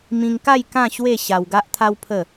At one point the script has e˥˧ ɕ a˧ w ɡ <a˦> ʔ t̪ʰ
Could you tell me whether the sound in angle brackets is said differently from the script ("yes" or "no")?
no